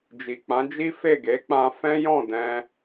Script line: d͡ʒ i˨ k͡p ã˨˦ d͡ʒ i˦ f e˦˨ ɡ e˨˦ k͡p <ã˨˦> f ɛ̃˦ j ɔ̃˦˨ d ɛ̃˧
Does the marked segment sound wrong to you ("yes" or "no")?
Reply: yes